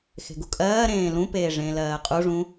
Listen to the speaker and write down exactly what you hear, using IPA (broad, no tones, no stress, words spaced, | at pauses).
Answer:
xe̤ɡukʼɜːɾẽː lũpeːʐẽː lɜːqʼuʐũ